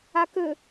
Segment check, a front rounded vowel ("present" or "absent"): present